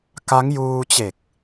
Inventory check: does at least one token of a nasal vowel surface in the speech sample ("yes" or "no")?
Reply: no